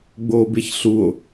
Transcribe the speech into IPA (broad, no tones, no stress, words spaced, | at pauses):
ɡ͡boːbeçɬuo̯